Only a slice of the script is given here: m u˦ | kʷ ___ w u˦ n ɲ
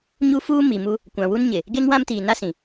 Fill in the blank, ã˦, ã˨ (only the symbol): ã˨